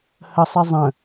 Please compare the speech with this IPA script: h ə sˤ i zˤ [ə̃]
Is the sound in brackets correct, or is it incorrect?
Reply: correct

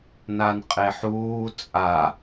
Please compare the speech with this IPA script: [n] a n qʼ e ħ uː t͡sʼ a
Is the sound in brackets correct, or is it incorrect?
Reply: correct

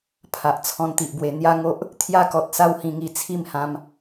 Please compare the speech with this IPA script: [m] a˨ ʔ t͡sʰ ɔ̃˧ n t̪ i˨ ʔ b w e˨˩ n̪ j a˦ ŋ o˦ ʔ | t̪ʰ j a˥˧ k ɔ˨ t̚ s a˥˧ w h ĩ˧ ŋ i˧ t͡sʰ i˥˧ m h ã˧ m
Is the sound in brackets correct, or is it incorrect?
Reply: incorrect: pʰ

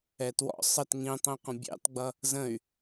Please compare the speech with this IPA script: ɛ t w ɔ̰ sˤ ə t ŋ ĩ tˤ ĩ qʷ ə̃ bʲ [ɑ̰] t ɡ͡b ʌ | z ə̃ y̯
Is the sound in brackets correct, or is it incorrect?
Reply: correct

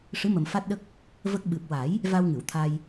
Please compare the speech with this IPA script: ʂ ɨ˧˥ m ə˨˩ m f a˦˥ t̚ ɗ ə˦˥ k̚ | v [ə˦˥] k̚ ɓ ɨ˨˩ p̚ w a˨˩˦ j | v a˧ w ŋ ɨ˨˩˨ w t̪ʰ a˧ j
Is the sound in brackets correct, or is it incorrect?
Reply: correct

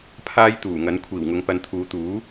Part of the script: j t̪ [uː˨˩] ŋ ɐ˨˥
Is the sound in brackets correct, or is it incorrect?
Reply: correct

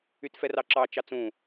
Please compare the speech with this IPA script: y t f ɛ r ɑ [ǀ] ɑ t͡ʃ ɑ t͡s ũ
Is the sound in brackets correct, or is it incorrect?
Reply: incorrect: ǁ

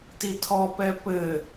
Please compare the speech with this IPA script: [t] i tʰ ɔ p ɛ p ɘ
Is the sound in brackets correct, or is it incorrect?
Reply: correct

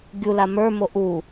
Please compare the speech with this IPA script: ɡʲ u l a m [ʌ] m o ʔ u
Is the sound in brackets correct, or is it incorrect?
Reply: incorrect: ə˞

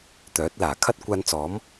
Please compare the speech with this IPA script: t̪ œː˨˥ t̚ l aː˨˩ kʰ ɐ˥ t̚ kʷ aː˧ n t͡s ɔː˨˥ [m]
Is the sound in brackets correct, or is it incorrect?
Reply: correct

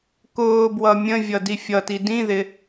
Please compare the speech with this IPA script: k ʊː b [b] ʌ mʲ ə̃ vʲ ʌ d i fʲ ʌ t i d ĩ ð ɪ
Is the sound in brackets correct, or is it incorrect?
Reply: incorrect: w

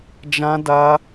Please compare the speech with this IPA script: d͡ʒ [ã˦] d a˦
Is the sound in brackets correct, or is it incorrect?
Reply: correct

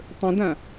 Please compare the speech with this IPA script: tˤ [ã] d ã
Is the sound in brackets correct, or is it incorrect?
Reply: incorrect: ə̃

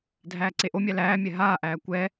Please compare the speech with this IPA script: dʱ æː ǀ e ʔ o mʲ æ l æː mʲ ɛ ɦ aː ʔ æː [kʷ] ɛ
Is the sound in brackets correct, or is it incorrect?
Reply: correct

